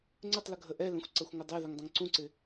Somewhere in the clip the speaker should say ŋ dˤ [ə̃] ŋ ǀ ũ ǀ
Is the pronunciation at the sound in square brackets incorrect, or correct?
correct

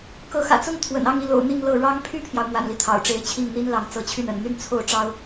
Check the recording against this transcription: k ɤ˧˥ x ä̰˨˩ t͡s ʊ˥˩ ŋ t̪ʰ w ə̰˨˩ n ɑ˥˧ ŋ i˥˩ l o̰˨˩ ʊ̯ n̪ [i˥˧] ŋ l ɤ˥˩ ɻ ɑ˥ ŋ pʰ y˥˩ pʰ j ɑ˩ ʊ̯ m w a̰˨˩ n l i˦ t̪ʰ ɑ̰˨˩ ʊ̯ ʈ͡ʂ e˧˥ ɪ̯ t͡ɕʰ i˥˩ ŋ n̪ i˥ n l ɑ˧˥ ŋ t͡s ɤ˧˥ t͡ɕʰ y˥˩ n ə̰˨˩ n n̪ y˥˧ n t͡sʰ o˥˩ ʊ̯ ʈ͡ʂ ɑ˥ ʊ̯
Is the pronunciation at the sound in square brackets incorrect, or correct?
correct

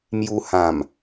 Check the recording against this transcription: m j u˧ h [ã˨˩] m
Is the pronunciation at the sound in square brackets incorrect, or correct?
correct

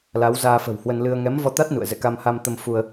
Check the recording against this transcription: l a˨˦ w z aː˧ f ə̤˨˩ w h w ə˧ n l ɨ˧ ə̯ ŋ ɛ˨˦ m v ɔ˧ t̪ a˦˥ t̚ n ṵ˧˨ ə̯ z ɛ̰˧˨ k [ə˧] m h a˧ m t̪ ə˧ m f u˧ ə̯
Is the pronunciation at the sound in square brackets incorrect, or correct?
incorrect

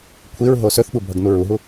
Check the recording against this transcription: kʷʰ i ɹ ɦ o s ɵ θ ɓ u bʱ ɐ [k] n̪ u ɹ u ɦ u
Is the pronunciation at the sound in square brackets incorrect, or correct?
incorrect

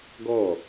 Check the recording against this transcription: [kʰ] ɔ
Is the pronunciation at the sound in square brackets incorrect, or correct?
incorrect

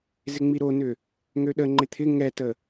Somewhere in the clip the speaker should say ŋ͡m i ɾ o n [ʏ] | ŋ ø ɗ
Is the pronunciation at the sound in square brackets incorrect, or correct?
correct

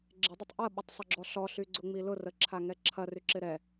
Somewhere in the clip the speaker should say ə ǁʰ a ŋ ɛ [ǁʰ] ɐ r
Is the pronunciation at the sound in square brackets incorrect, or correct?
correct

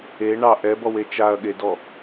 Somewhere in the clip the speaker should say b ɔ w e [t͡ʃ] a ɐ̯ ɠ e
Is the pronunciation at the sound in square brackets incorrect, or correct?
correct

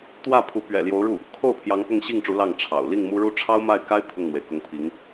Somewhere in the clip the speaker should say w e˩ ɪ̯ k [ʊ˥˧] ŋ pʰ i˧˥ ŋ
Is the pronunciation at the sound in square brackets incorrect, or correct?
incorrect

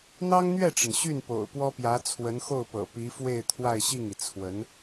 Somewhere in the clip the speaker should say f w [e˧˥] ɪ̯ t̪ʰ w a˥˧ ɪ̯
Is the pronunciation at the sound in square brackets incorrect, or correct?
incorrect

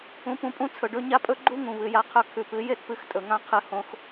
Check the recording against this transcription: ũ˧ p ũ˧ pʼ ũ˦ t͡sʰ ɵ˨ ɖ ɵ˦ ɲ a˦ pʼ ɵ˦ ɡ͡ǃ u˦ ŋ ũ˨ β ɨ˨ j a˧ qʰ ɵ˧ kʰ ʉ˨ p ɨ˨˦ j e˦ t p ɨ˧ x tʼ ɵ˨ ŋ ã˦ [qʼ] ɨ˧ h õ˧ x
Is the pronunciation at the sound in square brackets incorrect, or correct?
incorrect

